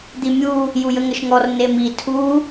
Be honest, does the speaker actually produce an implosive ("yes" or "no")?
no